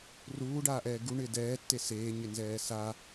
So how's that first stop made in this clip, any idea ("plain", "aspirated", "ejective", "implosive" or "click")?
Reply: plain